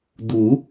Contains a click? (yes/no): no